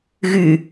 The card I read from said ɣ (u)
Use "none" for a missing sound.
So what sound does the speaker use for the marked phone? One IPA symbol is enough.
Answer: y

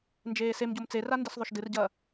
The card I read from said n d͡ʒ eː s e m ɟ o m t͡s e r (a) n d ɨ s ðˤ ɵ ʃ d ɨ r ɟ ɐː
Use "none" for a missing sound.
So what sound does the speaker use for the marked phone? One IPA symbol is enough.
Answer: a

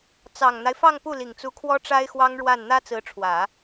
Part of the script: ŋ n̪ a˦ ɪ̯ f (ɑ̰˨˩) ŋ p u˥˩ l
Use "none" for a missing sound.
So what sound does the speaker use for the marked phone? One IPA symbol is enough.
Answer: ɑ˥˧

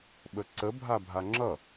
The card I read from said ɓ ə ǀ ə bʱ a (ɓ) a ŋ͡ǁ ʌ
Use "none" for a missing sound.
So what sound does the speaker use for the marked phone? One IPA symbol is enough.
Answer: bʱ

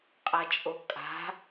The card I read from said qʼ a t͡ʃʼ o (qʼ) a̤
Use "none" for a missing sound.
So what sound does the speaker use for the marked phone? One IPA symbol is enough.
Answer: kʼ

